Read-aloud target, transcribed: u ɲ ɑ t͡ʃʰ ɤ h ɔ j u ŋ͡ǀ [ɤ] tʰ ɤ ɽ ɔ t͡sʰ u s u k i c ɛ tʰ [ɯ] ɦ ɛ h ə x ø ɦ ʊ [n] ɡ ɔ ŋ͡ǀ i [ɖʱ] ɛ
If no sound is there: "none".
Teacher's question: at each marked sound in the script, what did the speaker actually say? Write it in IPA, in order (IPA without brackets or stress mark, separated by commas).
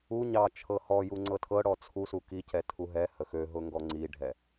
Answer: ɤ, u, ŋ, ɖʱ